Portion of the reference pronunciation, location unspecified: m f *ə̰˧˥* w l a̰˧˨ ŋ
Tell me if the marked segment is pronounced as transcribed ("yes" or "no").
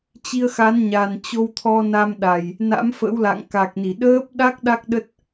yes